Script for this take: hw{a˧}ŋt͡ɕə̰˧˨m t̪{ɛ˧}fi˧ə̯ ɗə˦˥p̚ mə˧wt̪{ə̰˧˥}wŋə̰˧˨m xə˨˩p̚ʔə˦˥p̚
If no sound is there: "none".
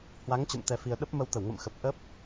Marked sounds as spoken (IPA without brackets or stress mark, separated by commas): a˨˦, ɛ˧, ə˧˩